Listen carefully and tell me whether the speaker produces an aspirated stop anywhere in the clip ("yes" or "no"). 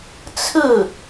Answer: yes